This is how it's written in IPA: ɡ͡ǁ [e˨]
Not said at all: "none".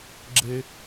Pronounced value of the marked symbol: e˦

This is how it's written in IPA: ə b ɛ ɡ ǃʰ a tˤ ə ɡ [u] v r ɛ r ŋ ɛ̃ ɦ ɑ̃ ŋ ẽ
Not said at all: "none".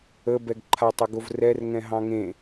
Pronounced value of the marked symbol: o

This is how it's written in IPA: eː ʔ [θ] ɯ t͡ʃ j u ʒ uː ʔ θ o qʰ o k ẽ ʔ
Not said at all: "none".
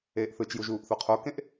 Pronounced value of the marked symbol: θ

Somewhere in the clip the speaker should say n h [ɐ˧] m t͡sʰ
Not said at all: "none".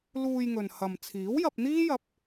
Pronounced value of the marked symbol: ɐ˨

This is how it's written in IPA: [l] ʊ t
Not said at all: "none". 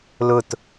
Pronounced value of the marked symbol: l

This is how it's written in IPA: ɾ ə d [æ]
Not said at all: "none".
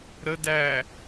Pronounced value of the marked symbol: æ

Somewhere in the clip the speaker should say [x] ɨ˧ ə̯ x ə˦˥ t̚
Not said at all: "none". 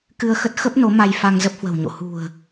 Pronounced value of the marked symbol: k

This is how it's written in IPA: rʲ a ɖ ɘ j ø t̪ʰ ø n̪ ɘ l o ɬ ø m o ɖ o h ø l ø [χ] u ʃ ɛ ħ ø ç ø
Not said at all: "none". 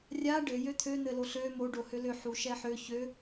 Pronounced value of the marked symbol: ħ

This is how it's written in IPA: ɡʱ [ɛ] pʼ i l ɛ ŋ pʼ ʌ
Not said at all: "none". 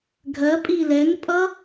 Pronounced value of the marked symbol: ɜ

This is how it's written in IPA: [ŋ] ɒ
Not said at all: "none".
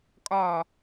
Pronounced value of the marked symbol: kʼ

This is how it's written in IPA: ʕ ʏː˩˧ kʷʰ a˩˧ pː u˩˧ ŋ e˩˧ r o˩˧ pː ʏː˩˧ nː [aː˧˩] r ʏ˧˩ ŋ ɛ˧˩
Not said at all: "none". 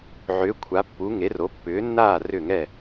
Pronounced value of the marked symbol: aː˧˩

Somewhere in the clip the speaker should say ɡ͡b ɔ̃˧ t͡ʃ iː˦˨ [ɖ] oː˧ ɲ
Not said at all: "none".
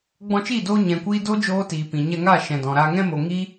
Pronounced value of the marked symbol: d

